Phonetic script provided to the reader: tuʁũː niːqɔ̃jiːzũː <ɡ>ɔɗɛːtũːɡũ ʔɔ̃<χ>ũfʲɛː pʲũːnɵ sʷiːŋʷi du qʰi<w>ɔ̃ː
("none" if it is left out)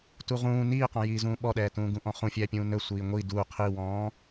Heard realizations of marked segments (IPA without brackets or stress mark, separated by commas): ɓ, χ, w